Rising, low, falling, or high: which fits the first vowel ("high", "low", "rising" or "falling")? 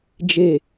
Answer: low